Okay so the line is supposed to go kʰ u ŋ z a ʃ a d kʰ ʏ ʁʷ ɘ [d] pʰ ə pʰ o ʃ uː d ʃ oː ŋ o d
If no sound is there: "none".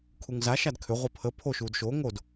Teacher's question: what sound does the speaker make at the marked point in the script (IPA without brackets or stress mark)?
none